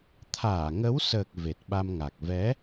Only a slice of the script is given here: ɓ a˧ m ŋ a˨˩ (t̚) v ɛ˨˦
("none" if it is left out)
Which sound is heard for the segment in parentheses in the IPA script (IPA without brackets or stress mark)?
k̚